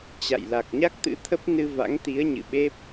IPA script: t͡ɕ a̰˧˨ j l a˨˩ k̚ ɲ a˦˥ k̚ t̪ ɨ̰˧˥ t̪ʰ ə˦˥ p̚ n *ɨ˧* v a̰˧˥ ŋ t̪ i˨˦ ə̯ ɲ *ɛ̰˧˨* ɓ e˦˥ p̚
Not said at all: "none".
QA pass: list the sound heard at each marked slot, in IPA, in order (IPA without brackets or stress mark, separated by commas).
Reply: ɨ˧, ɨ̰˧˨